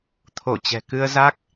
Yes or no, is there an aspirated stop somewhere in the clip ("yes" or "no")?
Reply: yes